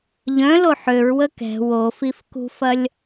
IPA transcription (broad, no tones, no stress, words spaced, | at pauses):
ʎœ̃lo ħøɹwə kɛ̤ wofif kṳfɐlʲ